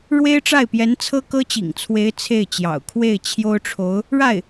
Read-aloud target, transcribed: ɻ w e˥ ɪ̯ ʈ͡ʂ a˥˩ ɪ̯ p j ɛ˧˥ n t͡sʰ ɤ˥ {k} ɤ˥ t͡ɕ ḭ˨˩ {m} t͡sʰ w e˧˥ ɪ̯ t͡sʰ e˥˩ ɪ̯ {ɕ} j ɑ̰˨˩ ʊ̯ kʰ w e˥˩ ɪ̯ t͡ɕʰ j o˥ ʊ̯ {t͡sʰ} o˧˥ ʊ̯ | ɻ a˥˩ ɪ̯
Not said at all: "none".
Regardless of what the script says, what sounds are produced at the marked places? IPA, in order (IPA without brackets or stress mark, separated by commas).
k, ŋ, t͡ɕ, ʈ͡ʂʰ